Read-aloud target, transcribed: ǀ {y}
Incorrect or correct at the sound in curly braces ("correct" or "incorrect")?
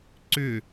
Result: incorrect